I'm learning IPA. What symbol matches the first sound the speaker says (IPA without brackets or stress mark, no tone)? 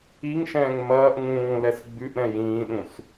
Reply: i